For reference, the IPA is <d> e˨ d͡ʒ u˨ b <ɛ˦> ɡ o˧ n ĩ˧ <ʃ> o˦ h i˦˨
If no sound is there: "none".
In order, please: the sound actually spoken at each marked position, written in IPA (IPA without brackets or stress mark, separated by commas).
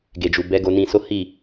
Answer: ɡ, ɛ˨˦, s